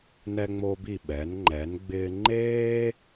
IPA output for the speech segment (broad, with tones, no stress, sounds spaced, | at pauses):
n ɛ˧ ŋ͡m o˧ b i˧˩ ɓ ɛ˩˧ n ŋ͡ǃ ɛ˩˧ n ɡ͡b ɪː˧ ŋ͡ǃ eː˥